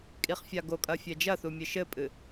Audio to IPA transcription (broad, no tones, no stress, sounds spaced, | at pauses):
kʼ i χ fʲ a ɡ o kʼ ɐ fʲ ɛ d͡ʒ ɐ θ u mʲ ɘ ʃ ɘ pʼ ɨ